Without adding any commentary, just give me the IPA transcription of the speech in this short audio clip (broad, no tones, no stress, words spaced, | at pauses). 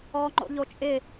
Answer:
ɔːŋ͡ǃo̰ʎot͡ʃʼɪ